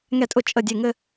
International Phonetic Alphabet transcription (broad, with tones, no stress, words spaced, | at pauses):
ŋɛ˧˩tʼʊ˧˩ t͡ʃʼə˧˩dʲe˧˩ŋɘ˥˧